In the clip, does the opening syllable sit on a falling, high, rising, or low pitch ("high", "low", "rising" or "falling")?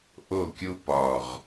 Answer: falling